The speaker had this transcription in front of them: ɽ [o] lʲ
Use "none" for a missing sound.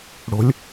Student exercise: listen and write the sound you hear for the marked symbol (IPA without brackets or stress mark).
o̤